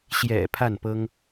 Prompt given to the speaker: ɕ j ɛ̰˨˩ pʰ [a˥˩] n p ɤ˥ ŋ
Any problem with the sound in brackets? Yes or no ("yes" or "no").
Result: no